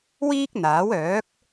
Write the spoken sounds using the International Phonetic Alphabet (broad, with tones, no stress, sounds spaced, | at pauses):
w iː˥ k̚ n̪ aː˨˥ w œː˨˥ k̚